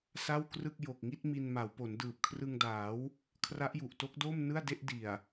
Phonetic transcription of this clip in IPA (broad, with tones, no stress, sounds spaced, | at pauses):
s a˥˩ w k r ɯ˥˩ k̚ j o˨˩ k̚ ŋ i˥˩ t̚ m i˧ n m a˩˦ w p o˩˦ n d ɯː˨˩ p̚ kʰ r ɯ˧ ŋ d aː˩˦ w | kʰ r a˦˥ ʔ j u˨˩ ʔ t o˦˥ k̚ d o˥˩ m n ɯ˥˩ a̯ d e˥˩ ʔ d i˨˩ a̯